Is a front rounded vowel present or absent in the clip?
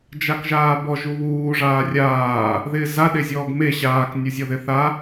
absent